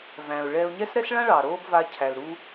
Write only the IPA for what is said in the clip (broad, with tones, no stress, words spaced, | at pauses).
væ̃˩ʊ̯ ɭɛː˧ʊ̯ɲɛ˥s ɾɛ˥sɭã˥ ɭɑ˩ɾoː˥b va˧ cʰæ˩lɾu˧